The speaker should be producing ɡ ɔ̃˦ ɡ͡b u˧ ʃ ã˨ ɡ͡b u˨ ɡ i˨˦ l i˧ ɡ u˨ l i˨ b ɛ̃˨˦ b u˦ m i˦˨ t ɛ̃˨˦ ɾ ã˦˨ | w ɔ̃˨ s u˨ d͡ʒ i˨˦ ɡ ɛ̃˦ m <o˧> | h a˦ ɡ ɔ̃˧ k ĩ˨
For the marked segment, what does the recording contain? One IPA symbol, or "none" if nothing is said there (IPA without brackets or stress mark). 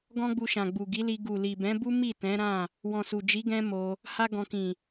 o˧